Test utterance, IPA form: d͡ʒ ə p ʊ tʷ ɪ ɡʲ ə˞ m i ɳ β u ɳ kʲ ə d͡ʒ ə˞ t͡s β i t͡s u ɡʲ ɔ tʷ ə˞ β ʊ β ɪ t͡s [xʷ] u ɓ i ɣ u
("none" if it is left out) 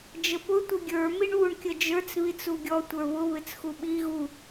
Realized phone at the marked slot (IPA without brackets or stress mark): x